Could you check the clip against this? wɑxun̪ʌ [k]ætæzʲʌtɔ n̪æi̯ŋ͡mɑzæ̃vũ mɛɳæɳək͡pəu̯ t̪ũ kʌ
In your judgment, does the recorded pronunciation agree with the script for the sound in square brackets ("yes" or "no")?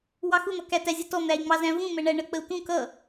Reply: yes